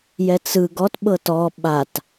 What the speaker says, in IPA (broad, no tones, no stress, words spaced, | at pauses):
jɛt͡sɯ ɡɔtɓɤ tɔ ɓat